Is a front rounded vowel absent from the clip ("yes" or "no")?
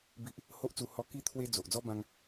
yes